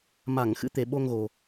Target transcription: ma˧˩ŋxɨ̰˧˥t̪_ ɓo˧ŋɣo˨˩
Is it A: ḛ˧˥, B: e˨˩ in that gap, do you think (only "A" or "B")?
B